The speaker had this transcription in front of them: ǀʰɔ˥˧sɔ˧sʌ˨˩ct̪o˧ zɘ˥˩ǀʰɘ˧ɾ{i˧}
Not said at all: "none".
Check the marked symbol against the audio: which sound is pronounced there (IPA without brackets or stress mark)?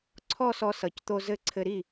i˥˩